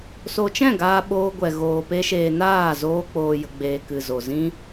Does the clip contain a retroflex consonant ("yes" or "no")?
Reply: no